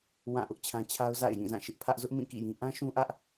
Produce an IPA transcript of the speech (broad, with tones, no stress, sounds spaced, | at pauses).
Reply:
w ã˦˨ ʔ ʊ˦ ʔ t͡ɕʰ ã˦ t͡ɕʰ a˦ ʊ̯ z a̰˦˨ ɪ̯ j ĩ˦˨ z ã˦˨ ʃ ɪ˦ ʔ pʰ ä˦ ʔ z ʊ˦ ʔ m ĩ˦˨ k ḭ˦˨ j ĩ˦ ʔ ã˦ ʃ ũ˦ ʔ ä˦ ʔ